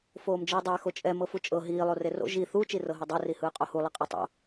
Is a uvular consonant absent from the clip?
no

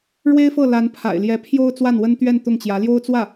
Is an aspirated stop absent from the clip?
no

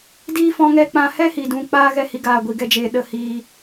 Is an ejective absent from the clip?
yes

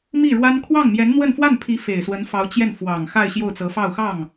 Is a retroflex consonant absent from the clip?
no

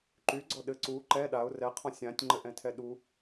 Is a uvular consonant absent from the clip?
no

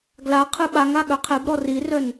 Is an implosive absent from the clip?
no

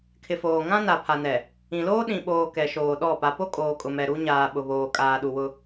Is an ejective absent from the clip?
no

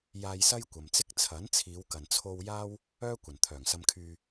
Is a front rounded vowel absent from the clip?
no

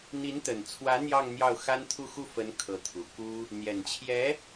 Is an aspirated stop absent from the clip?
no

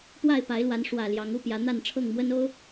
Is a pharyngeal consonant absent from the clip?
yes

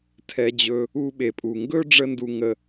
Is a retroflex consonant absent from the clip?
no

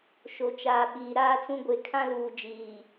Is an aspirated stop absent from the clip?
no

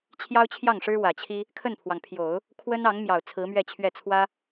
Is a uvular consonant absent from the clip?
yes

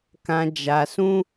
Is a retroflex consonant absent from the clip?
yes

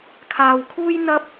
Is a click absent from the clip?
yes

